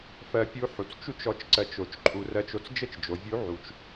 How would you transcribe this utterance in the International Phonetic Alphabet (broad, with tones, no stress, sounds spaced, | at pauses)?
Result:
f ɜ˧ pʲ u˧˥ ħ u˩ t͡s t͡ʃ u˥ t͡ʃ ɔ˧˥ t͡ʃ ǀ ɜ˧ t͡ʃ o˩˧ t͡ʃ ǃʰ u˩˧ r ɜ˧ t͡ʃ o˧ t͡s d͡ʒ ə˥ t͡ʃ d͡ʒ o˩˧ vʲ u˧˥ ʕ u˩˧ t͡ʃ